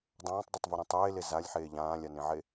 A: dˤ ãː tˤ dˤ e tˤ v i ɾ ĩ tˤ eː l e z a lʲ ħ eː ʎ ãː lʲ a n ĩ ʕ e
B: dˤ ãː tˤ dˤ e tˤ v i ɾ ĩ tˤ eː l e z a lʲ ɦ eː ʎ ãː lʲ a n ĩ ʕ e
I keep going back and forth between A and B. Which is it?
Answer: A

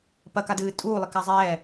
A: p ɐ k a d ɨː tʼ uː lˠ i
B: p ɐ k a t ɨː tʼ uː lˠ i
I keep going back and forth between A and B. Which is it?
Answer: A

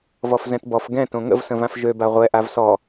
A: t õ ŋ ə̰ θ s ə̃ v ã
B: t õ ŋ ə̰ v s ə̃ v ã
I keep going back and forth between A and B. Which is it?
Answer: B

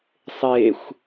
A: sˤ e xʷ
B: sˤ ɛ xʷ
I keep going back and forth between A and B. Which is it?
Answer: A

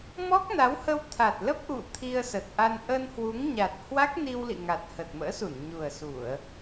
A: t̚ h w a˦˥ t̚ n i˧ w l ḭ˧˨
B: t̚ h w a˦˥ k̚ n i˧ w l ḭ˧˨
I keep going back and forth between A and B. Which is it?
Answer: B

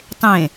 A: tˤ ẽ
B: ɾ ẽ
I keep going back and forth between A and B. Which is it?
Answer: A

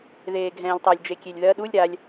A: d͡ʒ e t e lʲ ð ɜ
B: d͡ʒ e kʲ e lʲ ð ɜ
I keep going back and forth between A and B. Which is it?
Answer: B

